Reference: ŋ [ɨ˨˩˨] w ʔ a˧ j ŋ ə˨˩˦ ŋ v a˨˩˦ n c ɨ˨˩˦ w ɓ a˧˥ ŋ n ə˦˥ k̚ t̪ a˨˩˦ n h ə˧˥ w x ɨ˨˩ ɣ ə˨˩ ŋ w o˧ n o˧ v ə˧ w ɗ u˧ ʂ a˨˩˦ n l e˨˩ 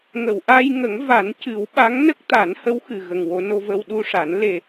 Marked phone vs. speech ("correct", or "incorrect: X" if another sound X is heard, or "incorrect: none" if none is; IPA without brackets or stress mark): incorrect: ə˨˩˨